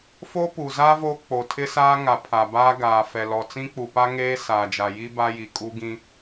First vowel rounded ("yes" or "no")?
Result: yes